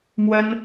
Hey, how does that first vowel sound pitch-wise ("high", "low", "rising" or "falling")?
high